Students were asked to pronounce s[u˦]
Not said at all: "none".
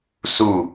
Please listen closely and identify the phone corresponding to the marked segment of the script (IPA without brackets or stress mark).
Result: u˥˨